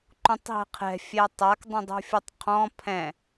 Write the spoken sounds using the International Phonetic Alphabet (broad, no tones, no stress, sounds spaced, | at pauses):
ǃ ũ tˤ ɦ ɛ̤ qʰ ɛ̤ fʲ ɛ tˤ a k dˤ ũ dˤ ṳ fʲ u tˤ qʰ ɔ̃ pʰ ɛ̃